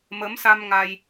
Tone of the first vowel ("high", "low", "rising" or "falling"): rising